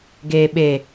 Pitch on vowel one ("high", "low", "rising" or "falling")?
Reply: low